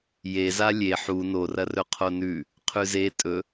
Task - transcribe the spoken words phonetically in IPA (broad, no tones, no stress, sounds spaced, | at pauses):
j e z a lʲ e ħ u n o r ɐ r ɵ qʰ o n ʉ | qʰ ʉ z e tʼ ɵ